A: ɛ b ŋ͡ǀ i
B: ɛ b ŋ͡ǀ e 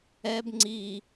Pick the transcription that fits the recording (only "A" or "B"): A